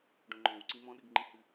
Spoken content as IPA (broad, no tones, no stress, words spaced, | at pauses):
ɖõŋ͡ǃɔ̃wǀĩ mɔ̃ɗɨɡŋ͡ǃĩhɨ